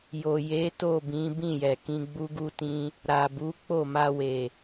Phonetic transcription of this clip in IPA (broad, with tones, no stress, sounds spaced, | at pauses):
j o˨ j e˨˦ t o˦˨ b ĩ˨˦ b ĩ˦˨ j ɛ˨ k ĩ˧ ɡ͡b u˦ ɡ u˦ t ĩ˦ | ɾ a˨ b u˨˦ k͡p o˦˨ m a˧ w e˨